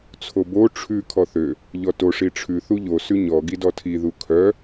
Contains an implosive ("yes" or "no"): no